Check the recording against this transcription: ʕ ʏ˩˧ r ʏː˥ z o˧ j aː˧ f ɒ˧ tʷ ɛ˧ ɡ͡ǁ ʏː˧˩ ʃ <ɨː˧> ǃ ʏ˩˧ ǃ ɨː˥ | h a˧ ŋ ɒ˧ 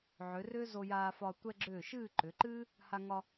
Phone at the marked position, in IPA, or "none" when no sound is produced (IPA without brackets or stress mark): ɨː˥˧